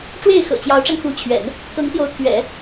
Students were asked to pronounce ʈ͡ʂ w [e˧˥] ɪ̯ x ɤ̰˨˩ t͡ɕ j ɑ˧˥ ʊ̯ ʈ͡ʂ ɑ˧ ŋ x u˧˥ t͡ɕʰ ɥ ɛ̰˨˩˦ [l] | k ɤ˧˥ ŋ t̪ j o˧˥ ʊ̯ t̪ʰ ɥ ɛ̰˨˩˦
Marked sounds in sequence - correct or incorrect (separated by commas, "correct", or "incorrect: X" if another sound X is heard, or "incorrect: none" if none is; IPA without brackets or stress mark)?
incorrect: e˥˩, incorrect: n